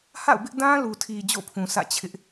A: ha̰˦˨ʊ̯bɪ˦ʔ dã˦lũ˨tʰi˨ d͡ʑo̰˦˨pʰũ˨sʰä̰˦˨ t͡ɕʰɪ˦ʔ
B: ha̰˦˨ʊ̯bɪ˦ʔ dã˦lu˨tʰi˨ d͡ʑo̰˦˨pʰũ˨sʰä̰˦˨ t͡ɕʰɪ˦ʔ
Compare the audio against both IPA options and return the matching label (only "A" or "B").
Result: B